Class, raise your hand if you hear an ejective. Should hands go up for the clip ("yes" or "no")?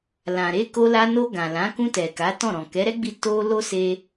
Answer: no